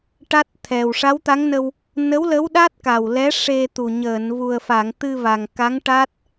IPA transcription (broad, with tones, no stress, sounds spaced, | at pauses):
ʈ a˦˥ t̚ t̪ʰ ɛ˨˩ w ʂ a˧˥ w t̪ a˧˥ ŋ n ə˧ w | n ə˧˥ w l ə˧˥ w ɗ a˦˥ t̚ k a˨˩ w l ɛ˧˥ ʂ e˧ t̪ u˨˩ ɲ əː˨˩˨ n v u˨˩ ə̯ f a˨˩˨ ŋ t̪ ɨ˧ v a˨˩ ŋ k a˧˥ ŋ ʈ a˦˥ t̚